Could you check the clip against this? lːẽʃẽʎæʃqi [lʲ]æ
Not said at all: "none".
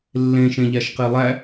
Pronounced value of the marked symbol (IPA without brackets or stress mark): lˠ